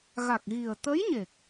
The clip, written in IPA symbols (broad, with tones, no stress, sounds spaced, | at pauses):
ɣ a˨˩ k̚ ɣ i˨˩ ə̯ t̪ ə˧˥ j ɲ e˨˩ k̚